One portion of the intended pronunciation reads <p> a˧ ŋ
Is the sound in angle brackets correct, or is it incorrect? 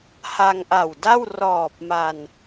incorrect